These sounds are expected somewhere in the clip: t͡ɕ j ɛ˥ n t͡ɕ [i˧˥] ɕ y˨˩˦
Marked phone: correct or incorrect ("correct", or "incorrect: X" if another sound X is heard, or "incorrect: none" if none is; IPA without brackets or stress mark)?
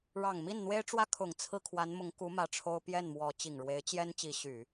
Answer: correct